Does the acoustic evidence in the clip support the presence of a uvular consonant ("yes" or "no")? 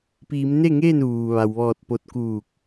no